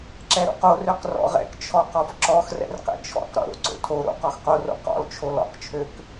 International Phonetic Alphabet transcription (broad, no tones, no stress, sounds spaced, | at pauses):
ǁ ɛ ɾ o̰ q o r ø q r ɔ̰ ʁ ɛ̰ k t͡ʃʰ ɔ q ɔ f ǁ ɔ x r ɛ̰ r q ɛ̰ t͡ʃʰ ɔ̰ q ɾ o̰ ɾ o̰ ǀ o̰ tʰ o ɾ o̰ q ɔ x q o r o̰ q ɔ̰ l t͡ʃʰ o l ɔ̰ q t͡ʃʰ ø k